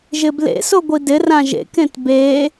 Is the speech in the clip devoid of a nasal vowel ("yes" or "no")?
no